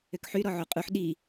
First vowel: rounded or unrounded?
rounded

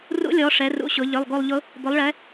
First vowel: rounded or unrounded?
rounded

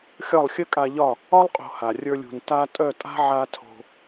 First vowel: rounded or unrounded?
rounded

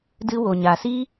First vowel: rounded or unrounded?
unrounded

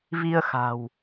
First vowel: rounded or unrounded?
unrounded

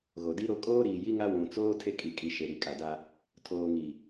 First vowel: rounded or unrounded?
rounded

